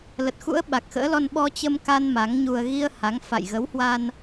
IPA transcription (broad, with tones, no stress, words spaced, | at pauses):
lə˨˩t̚xṵ˧˥ə̯ ɓa˨˩k̚xə̰ː˧˥lɔ˧n ɓɔ˧t͡ɕə˧m ka˧n ma˨˦ŋɲu˧ə̯ ɣi˧ə̯ ha˨˦ŋ fa̰˧˨jɣə˨˦whwa˧n